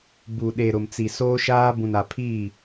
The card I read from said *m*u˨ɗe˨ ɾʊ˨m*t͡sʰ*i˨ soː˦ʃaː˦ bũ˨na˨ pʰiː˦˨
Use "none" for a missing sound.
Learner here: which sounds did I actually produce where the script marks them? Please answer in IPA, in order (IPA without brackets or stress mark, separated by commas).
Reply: b, t͡s